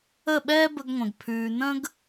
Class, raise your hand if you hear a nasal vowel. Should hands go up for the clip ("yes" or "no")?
yes